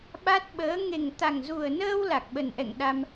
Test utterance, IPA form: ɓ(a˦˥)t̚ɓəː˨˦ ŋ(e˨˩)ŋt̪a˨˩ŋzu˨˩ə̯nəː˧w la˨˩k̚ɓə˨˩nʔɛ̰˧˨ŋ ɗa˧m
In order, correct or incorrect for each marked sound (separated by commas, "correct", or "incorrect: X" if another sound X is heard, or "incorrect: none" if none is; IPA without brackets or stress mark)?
correct, correct